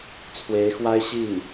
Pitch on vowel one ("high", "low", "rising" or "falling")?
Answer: rising